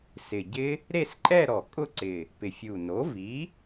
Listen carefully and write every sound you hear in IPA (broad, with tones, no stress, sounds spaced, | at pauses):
s ɪ˨˩ ɟ ɪ˦˥ | ɾ e˥˧ s ǃʼ ɛ˥˧ ɾ ɔ˨˩ kʼ ʊ˥˧ ǀ ɪ˨˩ | p ɪ˨˩ fʲ u˨˩ n o˩˥ v i˩˥